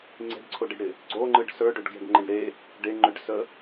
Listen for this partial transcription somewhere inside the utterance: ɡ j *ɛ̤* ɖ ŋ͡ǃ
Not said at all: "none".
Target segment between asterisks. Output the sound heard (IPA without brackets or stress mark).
ə̤